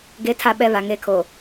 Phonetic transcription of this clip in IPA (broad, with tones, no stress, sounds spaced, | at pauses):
ɡ e˨˦ tʰ a˨ ɓ ɛ˨ β a˨ ŋ e˦˨ kʰ o˨